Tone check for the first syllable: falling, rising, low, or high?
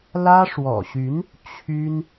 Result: high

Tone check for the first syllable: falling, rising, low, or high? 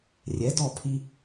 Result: rising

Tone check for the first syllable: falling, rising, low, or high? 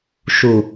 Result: low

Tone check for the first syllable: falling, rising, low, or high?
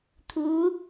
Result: rising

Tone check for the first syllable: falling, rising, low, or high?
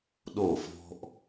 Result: falling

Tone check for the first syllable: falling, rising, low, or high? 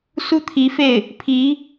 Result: high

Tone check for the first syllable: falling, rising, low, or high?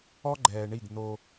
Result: high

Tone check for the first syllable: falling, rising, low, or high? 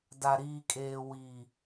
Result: low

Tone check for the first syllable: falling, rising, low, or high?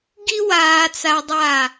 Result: high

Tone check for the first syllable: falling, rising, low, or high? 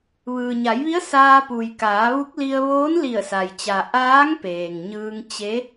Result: low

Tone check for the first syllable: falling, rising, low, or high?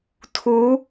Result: rising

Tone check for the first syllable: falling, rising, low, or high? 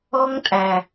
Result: high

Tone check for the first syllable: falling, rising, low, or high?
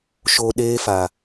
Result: low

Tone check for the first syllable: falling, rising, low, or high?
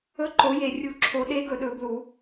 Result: rising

